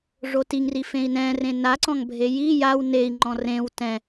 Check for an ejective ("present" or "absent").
absent